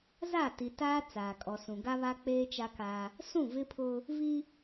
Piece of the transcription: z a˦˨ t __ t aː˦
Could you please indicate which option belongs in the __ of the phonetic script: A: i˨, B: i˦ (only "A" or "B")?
A